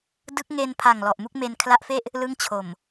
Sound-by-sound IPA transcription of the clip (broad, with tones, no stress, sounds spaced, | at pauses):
d ɯ˦˥ k̚ ŋ e˧ n pʰ a˨˩ ŋ l ɔ˨˩ ʔ m u˥˩ k̚ m e˧ n kʰ l a˦˥ ʔ f e˥˩ ʔ | l ɯ˥˩ ŋ t͡ɕʰ o˨˩ m